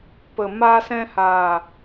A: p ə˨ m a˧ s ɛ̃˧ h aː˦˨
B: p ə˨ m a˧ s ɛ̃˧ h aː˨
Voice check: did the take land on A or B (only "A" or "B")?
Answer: B